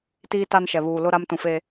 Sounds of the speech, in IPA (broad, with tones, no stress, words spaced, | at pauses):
tiː˦ta˦nʃɛ˨ βuː˨lʊ˦ ɾa˦mtũ˨fe˦